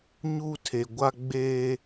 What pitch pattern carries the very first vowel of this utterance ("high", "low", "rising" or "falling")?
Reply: high